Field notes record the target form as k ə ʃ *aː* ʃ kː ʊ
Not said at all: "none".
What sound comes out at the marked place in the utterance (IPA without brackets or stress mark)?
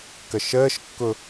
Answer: əː